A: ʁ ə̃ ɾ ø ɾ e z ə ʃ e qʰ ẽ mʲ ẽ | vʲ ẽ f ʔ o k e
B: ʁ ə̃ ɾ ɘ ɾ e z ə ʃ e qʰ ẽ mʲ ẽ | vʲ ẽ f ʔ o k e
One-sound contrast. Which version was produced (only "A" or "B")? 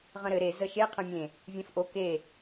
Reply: B